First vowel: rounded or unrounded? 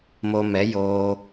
rounded